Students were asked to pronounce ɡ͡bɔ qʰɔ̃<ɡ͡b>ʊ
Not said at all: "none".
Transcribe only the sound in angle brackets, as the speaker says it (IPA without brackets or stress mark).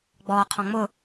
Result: ŋ͡m